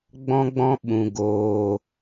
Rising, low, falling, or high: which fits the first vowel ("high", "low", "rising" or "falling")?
high